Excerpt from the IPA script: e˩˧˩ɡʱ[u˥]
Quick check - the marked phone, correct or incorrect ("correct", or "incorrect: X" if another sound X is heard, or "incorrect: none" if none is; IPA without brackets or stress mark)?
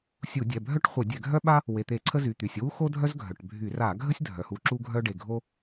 incorrect: o˥